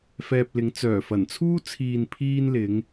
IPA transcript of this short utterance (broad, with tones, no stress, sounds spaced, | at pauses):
f ɛː˧ p̚ l ɪ˨˥ ŋ t͡s œː˨˩ f ɐ˨˩ n t͡sʰ uː˥ t͡sʰ iː˨ n pʰ iː˥ n l ɪ˨˥ ŋ